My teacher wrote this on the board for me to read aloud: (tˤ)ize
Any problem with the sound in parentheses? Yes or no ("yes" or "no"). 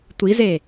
yes